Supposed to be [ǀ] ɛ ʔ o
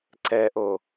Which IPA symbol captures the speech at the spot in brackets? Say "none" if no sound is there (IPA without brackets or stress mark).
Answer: ǀ